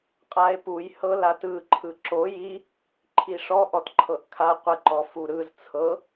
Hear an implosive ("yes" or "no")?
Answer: no